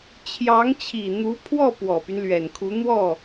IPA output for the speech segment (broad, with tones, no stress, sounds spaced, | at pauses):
t͡ɕʰ j ɑ˧˥ ŋ t͡ɕʰ i˨˩ n̪ u˧˥ pʰ w ɔ˥˩ p w ɔ˨˩ p y˦ n l ɥ ɛ˨˩ n kʰ u˧˥ n̪ w ɔ˥˩